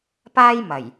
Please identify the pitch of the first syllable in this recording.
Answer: high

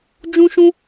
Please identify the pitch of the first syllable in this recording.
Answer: high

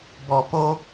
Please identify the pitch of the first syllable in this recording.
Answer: low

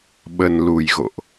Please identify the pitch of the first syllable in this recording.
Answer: low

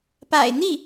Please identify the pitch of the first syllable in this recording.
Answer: low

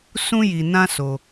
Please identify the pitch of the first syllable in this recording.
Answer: high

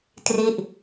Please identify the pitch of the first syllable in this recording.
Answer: falling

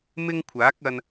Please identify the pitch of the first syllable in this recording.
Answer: high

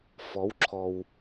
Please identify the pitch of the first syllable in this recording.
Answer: rising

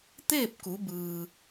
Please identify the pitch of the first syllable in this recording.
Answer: falling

